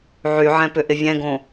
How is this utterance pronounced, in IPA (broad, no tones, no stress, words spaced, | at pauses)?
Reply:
ʕyʕɛ̃pʏʔɪ vʲɛ̃ɡõ